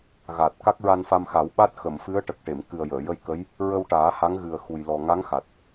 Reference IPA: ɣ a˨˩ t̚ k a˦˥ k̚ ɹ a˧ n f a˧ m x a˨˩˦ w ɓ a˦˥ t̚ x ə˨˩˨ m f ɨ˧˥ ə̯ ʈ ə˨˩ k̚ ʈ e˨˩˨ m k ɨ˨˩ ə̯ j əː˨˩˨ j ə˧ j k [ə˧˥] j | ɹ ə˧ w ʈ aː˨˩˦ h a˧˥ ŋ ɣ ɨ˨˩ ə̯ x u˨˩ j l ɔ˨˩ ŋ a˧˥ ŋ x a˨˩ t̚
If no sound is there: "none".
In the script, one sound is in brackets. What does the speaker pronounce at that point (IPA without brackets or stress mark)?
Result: ə˧˥